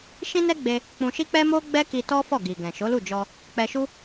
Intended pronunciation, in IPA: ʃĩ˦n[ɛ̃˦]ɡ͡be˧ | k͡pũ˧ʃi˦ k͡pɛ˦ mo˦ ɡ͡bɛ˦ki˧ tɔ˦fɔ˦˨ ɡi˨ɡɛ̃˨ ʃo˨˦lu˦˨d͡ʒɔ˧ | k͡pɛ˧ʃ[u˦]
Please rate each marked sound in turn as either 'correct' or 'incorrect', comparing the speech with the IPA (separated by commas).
incorrect, correct